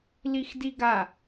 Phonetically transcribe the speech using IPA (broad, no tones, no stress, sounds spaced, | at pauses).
l i x d i ɡ a